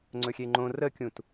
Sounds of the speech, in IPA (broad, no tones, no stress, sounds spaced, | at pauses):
ŋ͡ǀ ɵ xʲ e ŋ͡ǃ õ r ə kʲ ũ t